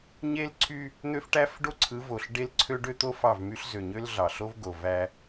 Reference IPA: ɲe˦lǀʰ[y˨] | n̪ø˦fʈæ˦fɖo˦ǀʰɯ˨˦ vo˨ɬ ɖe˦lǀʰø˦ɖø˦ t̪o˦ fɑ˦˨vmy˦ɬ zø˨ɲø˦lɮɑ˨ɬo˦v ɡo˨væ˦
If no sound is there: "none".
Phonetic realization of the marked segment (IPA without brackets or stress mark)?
y˦